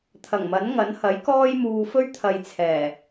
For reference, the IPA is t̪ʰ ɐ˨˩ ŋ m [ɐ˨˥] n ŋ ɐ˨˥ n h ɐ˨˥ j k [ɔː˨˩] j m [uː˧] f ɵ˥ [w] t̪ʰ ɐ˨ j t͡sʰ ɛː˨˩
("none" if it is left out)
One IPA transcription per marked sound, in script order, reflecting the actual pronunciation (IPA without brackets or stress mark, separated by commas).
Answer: ɐ˨˥, ɔː˥, uː˧, ɥ